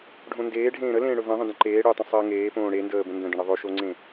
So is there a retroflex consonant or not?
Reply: yes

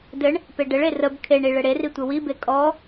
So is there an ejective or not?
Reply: yes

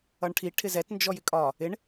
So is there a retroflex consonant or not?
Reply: yes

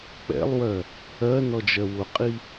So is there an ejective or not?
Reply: yes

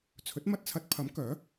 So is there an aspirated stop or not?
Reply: yes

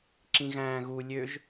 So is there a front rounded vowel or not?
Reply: yes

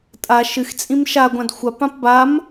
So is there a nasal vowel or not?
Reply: yes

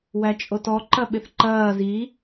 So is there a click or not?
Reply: yes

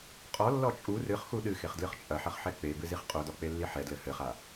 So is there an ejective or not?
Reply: yes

